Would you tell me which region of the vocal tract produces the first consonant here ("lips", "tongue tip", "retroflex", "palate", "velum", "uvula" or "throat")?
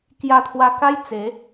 velum